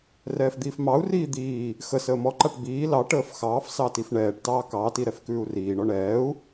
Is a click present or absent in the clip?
present